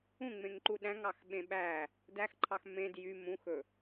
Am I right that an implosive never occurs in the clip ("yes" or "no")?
no